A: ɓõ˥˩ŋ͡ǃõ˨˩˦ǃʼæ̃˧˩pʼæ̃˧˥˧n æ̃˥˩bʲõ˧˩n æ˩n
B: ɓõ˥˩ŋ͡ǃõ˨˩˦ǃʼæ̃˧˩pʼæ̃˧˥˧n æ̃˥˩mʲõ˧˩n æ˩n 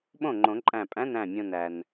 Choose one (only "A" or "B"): B